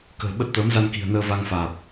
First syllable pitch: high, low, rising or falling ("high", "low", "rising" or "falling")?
low